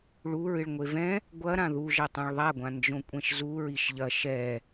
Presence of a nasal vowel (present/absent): present